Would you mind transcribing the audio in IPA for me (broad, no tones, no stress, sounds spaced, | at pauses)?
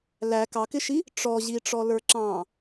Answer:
l æ k ɑ k ɪ ʃ i | ʈ͡ʂ ɔ ʑ i ʈ͡ʂ ɔ l ə˞ ǁ ɑ̃